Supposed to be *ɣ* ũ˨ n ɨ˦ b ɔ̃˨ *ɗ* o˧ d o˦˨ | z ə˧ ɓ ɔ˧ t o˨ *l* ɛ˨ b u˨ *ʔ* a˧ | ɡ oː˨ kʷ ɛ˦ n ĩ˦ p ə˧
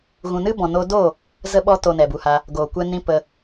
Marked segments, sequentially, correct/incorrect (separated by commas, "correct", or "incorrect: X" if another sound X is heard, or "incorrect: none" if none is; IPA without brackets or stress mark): correct, incorrect: n, incorrect: n, incorrect: h